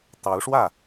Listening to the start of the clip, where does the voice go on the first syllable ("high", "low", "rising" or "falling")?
rising